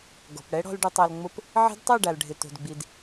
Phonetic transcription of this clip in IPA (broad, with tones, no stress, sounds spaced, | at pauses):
ɡ ɔ̤˨ p ɽ ɛ˦ ɽ ɔ̤˧ l ɖ ʊ˨ tˤ a˨ l ŋ͡m ʊ˧ p | ʕ i̤˧ d tˤ a˦˨ ɖ a˨ l ɖʱ ɪ˨ t o̤˨ d ɡ͡b i˨ d